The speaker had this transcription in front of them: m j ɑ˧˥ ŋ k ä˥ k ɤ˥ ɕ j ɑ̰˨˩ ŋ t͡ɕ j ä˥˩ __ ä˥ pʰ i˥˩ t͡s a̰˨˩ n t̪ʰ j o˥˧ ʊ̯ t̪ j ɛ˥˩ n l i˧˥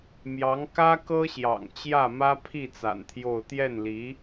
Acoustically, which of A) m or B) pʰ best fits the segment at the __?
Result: A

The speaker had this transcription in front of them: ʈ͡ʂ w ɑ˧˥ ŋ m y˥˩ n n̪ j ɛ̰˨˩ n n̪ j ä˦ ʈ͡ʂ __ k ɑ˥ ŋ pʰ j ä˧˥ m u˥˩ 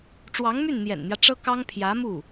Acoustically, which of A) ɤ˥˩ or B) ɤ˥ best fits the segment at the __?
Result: B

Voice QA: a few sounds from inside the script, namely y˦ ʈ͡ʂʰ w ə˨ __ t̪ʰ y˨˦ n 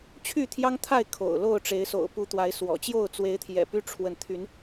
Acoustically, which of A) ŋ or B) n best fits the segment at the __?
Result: B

